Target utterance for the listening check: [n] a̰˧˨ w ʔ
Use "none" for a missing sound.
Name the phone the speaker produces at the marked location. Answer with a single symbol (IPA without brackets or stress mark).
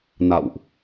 n